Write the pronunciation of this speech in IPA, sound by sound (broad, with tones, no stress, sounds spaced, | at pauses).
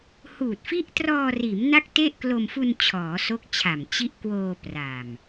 h uː˨˩ t̚ f i˦˥ ʔ t r ɔː˧ r iː˩˦ m n a˥˩ k̚ t e˥˩ ʔ k l o˧ m f u˧ n t͡ɕʰ ɔː˩˦ s o˦˥ k̚ t͡ɕʰ a˨˩ m t͡ɕ i˦˥ ʔ k w oː˧ p r a˨˩ m